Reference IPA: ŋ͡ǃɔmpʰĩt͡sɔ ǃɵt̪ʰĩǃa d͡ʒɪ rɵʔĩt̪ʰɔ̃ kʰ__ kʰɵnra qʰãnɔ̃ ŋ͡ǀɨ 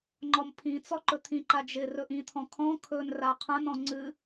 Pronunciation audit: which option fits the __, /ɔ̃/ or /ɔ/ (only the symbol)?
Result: ɔ̃